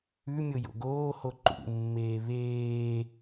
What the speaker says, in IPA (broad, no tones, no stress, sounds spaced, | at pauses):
ʉ mʲ o j o̰ ɡ oː h o ǃ ṵ mː eː β eː